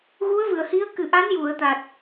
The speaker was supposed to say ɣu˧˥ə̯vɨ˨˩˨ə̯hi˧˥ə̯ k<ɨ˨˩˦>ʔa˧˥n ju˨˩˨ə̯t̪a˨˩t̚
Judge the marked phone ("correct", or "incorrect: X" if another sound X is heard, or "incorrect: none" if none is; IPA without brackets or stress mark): incorrect: ɨ˨˩